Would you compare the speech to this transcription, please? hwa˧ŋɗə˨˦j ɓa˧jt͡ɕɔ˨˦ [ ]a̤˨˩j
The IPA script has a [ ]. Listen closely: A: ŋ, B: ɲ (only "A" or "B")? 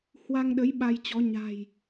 B